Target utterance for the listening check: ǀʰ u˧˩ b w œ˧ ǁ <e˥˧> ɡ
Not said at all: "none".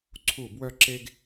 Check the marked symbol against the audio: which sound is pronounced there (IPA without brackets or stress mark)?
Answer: e˧